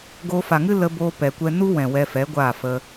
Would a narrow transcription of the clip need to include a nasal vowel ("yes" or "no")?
yes